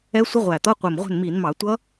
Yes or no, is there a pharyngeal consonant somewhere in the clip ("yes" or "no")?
no